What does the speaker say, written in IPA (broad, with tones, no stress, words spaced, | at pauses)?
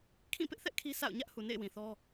kʰĩ˦˨pɪ˦ʔθɛ˦ʔ kʰi˦sa̰˦˨ʊ̯ ɲä˦ʔhu˨ nḛ˦˨ɪ̯wĩ˨ θɔ˦